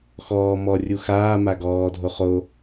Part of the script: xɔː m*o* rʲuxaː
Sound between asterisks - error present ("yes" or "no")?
yes